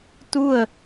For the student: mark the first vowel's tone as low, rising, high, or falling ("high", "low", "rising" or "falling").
falling